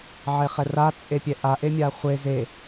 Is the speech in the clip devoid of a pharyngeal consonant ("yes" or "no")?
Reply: no